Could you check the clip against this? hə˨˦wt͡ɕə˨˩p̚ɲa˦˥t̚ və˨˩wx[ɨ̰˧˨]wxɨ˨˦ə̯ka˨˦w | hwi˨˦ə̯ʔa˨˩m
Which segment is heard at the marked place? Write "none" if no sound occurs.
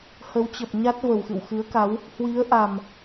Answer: ɨ̰˧˨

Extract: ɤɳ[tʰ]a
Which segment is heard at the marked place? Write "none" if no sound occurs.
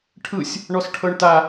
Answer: t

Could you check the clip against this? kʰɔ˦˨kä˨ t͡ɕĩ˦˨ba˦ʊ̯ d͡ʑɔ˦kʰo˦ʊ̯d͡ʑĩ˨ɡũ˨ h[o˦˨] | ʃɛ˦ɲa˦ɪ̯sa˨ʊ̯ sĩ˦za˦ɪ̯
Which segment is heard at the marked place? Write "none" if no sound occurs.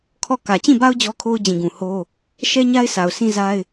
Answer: o˦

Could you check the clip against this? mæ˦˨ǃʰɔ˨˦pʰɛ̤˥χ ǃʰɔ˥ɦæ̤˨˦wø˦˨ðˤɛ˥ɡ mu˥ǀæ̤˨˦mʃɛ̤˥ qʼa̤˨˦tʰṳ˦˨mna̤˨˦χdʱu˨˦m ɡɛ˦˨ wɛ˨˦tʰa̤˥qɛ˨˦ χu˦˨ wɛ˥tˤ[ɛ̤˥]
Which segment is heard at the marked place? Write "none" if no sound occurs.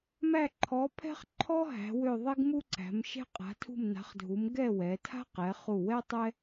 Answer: ɛ˥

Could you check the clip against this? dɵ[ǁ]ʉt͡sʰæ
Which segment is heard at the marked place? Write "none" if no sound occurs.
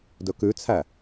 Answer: k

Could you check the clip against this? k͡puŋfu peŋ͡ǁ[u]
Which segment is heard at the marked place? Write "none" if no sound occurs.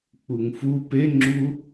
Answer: u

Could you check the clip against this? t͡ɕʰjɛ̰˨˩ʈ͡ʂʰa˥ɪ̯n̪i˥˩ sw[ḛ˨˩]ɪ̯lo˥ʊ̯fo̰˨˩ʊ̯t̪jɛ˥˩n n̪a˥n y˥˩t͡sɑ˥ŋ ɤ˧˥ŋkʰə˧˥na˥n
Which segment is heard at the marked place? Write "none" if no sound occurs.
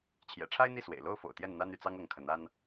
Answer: ḛ˨˩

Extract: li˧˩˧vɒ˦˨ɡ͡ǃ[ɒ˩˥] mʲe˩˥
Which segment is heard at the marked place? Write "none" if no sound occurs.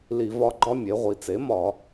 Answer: ɒ˥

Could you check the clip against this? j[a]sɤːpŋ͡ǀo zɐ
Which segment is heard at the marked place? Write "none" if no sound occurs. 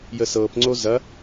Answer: ə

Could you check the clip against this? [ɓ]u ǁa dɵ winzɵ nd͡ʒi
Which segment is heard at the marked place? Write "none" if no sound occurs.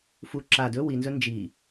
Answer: f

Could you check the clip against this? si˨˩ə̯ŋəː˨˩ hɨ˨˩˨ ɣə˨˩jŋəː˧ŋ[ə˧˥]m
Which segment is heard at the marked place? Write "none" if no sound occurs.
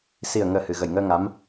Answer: a˧˥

